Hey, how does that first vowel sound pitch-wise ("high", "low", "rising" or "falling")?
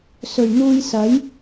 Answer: low